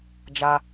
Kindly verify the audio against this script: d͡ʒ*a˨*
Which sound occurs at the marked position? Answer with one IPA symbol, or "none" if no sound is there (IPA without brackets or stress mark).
a˦